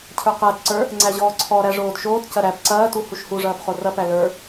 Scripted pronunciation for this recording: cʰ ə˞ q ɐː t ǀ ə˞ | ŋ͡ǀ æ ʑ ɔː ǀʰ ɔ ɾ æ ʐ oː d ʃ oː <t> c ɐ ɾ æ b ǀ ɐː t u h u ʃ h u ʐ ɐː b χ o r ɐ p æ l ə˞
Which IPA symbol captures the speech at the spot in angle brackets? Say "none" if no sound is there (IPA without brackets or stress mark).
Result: t